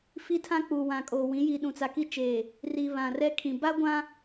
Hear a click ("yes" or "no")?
no